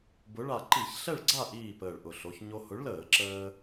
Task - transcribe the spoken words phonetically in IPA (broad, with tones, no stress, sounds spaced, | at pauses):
b ʊ˨˥ ɭ a˧˩ ǃ i˧˩˧ ç ɬ ɛ˥˨ ɭ ɡ͡ǀ a˥˨ ʔ iː˥˨ p əː˧˩ ɭ ʔ ʊ˧˩ ɬ o˩˧ ç ɲ o˧ h ʊ˨˥ ɭ l əː˧˩˧ ǁ əː˧